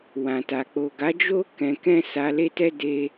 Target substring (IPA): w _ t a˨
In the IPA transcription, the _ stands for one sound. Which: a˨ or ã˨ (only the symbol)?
ã˨